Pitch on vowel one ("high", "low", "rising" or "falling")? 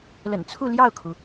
low